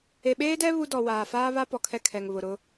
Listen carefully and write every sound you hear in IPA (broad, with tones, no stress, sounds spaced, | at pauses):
e˨ ɓ eː˦ d ɛ˦ β u˦ d ɔ˨ w aː˨ f aː˦ β a˦ p ɔ˨ kʰ ɛ˦ kʰ ɛ˨ ŋ β ʊ˨ ɾ ʊ˦